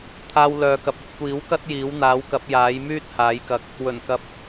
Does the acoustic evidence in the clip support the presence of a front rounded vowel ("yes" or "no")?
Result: yes